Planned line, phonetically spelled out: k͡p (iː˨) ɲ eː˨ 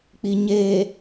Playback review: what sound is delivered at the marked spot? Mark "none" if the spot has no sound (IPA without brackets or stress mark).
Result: i˨